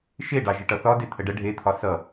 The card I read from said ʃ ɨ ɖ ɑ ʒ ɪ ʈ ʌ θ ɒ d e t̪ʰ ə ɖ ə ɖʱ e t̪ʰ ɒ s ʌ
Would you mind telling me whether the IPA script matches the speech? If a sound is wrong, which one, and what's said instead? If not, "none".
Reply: ɨ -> e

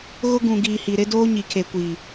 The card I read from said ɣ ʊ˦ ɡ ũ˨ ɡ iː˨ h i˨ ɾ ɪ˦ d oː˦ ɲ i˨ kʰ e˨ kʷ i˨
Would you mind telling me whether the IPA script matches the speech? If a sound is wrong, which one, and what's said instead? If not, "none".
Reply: none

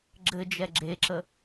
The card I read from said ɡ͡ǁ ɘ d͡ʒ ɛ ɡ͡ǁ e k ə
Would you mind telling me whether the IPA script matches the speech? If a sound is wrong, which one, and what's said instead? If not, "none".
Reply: k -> ǁ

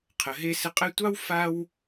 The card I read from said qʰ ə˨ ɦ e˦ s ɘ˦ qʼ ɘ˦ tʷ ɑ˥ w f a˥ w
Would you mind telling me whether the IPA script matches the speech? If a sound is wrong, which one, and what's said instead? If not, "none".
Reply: none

